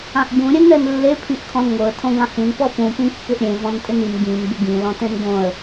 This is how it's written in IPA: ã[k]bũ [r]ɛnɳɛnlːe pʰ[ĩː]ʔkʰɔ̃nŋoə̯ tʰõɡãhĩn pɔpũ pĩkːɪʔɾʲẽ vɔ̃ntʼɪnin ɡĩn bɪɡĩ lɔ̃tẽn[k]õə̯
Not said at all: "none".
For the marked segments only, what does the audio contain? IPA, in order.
ʔ, ɾʲ, ĩ, ɡ

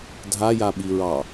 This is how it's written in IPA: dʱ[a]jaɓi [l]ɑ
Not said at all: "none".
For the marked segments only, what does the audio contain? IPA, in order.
a, ɹ

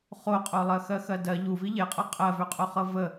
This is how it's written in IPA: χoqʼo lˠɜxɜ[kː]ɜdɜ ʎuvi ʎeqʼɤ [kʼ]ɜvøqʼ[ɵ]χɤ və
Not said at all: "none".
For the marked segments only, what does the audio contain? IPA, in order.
x, qʼ, o

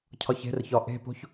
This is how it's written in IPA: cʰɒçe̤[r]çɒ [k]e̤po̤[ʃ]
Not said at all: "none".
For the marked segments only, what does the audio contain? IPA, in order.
r, ʔ, ç

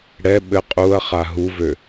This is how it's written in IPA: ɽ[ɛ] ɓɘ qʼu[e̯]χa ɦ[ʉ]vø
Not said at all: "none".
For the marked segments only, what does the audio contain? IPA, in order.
ɛ, ɐ̯, u

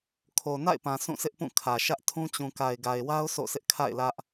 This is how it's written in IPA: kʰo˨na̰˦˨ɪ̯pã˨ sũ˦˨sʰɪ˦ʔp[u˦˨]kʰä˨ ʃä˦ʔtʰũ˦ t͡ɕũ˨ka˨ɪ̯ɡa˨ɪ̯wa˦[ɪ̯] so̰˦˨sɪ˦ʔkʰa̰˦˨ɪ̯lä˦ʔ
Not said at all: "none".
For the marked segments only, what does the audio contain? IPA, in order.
ũ˦˨, ʊ̯

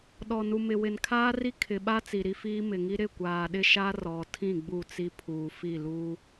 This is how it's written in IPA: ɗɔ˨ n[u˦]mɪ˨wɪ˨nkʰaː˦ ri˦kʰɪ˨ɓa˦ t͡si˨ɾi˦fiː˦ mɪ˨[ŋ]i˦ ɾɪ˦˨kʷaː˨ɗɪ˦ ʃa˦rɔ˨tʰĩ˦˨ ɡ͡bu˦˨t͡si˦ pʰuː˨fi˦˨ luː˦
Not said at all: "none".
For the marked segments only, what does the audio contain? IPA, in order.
u˨, ŋ

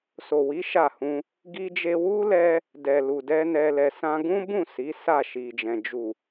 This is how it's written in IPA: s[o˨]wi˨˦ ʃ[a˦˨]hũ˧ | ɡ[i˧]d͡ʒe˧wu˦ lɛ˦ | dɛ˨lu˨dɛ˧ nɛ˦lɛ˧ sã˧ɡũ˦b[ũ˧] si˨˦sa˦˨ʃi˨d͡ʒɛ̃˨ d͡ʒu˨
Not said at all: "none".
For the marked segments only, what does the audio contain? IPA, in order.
o˨, a˦˨, i˧, ũ˦˨

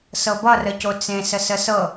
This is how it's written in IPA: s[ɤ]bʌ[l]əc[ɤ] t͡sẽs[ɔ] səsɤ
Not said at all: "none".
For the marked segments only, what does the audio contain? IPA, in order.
ɤ, r, o, ə

